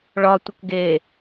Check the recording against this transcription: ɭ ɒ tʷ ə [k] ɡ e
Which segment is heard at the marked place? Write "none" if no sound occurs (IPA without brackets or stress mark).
k